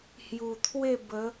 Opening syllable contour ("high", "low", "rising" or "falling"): low